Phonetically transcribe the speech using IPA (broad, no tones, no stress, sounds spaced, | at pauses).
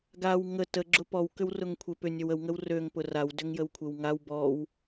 ɡ a w ŋ ə t ə ɡ͡ǁ ʊ p ɔ w k ʏ w r ʊ ŋ kʷʰ e p ʏ nʲ ø w ə w ŋ ə w r ø ŋ p ʊ r a w d ʏ ŋ j ə w kʷʰ e w ŋ a w b ɔ w